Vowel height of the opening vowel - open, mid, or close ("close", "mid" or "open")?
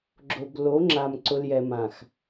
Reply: mid